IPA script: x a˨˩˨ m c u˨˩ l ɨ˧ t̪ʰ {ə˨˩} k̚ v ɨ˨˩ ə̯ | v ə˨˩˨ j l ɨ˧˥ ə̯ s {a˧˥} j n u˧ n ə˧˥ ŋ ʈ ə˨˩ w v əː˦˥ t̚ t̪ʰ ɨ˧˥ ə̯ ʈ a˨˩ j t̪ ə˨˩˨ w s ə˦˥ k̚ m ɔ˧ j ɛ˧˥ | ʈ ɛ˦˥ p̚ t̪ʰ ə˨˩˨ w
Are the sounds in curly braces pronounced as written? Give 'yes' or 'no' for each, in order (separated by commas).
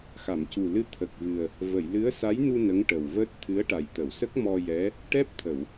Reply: yes, yes